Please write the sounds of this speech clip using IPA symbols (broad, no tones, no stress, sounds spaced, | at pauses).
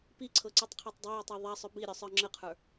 p i ǀʰ ɤ ǀ i tˤ qʰ a tˤ dˤ ɵ j a tˤ a ðˤ a sˤ ɵ b i ɾʲ ɵ sˤ ə˞ ŋ͡ǁ ə qʰ ə˞